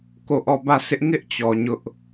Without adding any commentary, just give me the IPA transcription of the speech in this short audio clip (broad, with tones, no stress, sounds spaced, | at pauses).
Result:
k o˦˨ ʔ ɔ˦˨ b ä˦˨ s ɪ˦ ʔ ŋ ɪ˦ ʔ t͡ɕ ɔ˨ ɲ ʊ˦ ʔ